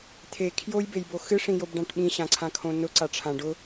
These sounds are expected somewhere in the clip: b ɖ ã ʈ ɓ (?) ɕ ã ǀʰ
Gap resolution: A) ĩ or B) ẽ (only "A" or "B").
A